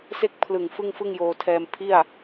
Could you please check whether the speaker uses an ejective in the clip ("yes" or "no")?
no